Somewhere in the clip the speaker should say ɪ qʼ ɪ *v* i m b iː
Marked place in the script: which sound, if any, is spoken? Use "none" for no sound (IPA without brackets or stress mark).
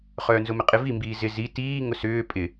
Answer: v